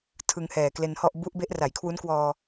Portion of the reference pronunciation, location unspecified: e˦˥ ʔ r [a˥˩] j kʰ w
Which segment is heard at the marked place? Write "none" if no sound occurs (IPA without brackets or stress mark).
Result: a˩˦